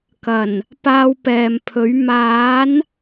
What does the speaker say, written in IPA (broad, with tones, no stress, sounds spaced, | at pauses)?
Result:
k ɐ˨˩ n | p aː˧ w p ɛː˨ m pʰ ɵ˨˥ ɥ m aː˨˥ n